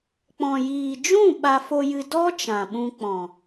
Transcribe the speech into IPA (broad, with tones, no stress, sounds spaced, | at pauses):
k͡p ɔ̃˨ j iː˨ d͡ʒ ũ˦˨ ɓ a˧ f o˧ j ɨ˧ d ɔ˦ t͡ʃ ã˨ ɓ ũ˧ k͡p ɔ̃˨